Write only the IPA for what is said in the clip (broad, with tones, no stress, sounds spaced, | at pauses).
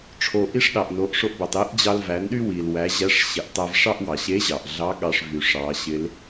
ʈ͡ʂʰ o˩ ʔ i˥ ʂ ɗ ɑ˩ ʔ n o˩˧ ʔ ʂ o˧ ʔ b æ˩ tˤ e˧˥ ʔ d͡ʑ ɑ˧ l v æ˩˧ n ɗ y˥ w i˩ l w æ˩˧ ʑ æ˧˥ ʂ ɕ ɪ˩˧ ʔ tˤ æ˧ v ʂ ɑ˥ ʔ w ɑ˩ ɕ e˧˥ ʑ ɑ˩ ʔ ɮ ɑ˧˥ ɠ ɑ˧ ʂ v y˩ ʂ ɑ˩˧ ɕ ɪ˧˥ l